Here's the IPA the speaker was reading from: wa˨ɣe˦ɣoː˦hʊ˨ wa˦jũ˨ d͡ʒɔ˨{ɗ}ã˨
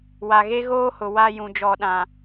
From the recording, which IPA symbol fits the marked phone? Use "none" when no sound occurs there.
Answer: ɗ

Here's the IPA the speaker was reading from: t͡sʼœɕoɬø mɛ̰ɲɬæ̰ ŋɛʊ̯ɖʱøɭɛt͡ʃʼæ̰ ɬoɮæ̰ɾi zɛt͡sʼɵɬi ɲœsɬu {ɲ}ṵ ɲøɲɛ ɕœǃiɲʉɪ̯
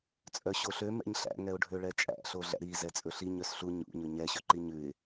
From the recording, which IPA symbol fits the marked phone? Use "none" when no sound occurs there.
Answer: ɲ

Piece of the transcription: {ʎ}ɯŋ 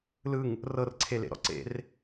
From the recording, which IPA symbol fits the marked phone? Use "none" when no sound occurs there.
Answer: l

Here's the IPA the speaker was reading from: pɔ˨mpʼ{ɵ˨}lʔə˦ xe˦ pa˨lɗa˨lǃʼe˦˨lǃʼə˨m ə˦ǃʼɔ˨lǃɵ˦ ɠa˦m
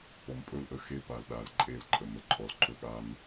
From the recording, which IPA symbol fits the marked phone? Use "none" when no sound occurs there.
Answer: ɵ˦˨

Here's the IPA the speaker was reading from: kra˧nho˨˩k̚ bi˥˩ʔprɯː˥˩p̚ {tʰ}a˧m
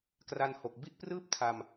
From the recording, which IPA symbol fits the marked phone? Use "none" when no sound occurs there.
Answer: tʰ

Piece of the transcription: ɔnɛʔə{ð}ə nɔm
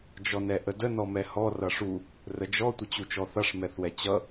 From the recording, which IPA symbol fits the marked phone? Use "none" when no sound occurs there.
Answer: d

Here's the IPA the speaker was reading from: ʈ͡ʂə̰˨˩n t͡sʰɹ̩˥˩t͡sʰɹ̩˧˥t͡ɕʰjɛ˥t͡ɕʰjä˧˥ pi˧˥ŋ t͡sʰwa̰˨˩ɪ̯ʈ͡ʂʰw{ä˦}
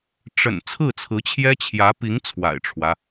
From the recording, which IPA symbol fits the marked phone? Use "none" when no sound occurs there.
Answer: ä˦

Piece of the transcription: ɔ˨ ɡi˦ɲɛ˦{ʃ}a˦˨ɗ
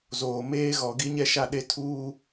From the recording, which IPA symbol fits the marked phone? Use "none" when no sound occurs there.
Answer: ʃ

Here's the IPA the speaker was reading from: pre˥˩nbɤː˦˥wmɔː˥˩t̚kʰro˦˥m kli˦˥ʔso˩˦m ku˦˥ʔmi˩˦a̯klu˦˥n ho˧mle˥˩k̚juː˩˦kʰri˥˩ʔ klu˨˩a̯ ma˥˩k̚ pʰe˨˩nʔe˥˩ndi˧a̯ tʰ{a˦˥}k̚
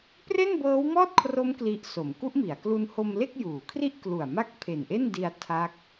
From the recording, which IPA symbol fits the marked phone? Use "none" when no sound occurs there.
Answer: a˦˥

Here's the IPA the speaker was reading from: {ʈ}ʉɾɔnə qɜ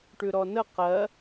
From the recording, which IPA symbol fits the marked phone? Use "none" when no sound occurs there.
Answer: ʈ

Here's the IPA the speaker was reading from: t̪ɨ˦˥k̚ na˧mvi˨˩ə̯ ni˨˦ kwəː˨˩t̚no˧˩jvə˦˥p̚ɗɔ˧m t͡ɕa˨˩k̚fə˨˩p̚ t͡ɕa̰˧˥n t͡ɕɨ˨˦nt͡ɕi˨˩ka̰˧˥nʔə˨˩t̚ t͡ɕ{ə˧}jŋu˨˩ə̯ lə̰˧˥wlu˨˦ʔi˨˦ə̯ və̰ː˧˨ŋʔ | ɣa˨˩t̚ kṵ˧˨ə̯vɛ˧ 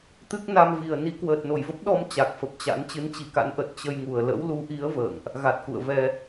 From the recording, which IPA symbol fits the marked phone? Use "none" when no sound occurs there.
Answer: ə˧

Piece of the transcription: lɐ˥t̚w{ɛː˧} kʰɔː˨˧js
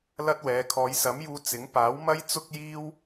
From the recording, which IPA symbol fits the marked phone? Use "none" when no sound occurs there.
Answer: ɛː˨˧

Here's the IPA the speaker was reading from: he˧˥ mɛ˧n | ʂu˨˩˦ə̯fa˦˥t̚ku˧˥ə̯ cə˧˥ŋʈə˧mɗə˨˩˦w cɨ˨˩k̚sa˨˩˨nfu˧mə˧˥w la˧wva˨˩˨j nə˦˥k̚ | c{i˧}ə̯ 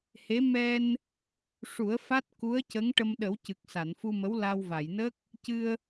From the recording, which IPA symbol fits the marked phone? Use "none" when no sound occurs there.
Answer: ɨ˧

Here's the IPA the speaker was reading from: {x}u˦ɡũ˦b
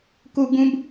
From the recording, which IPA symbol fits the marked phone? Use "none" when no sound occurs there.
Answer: k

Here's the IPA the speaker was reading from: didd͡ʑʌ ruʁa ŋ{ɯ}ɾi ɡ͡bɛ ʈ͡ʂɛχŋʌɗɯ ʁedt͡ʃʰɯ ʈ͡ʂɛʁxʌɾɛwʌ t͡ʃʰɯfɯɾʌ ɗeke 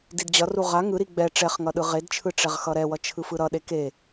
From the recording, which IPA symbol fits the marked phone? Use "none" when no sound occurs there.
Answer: ɯ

